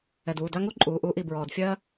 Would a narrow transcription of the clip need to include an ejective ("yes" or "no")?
yes